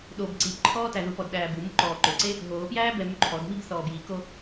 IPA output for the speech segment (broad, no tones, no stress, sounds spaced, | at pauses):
ɗ o b ǀ i p ǃʰ ɔː t æ ð u p ɔ d ɗ æː b u m u ǃ ɔː ǃ ɵ ǀ e | ɦ oː p j æː b ɛ m y ǃʰ ɔ d m i b θ ɔː b j i k o